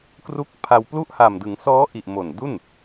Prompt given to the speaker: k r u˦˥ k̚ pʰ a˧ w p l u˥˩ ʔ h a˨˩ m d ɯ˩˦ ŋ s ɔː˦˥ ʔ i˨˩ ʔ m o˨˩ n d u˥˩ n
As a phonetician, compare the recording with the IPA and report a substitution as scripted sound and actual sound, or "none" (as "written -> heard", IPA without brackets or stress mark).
none